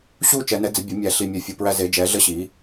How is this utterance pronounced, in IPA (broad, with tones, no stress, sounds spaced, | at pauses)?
ɕ u˦˨ t͡ʃ ɛ˨˩˦ n ɛ˩˥ d͡z ə˩˥ bʲ o˩˥ mʲ æ˨˩˦ ɬ i˨ mʲ ɛ˨˩˦ fʲ o˨ p ɹ æ˦ z e˩˥ d͡ʒ ɛ˩˥ ɮ ə˦ ɕ i˩˥